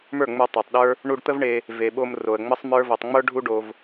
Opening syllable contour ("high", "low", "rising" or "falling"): falling